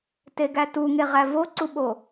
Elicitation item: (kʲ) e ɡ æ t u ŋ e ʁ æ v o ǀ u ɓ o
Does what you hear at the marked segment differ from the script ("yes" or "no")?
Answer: yes